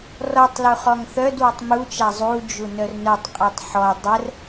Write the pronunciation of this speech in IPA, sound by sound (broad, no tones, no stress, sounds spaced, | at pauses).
r ɔ tˤ l u χ ɔ ŋ θ œ d w ɔ tˤ m u t͡ʃ a zˤ u d͡ʒ u n œ r n œ tˤ qʼ ɔ tˤ ħ ɔ dˤ ə r